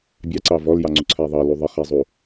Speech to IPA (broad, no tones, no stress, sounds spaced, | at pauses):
bʲ ɑ ǀ ɑ v ɔ l j ɑ ŋ͡ǀ u ǀʰ æ ðˤ ɑ l u ðˤ ə χ æ zˤ u